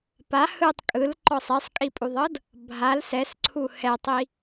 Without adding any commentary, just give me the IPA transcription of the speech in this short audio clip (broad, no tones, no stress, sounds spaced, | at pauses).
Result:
p a h ɯ tˤ kʼ ɯ l ǃ ɔ sˤ e sˤ kʼ i pʼ u ðˤ ɤ d | bʱ a l s ɛ s ǀʰ u h ɛ tˤ i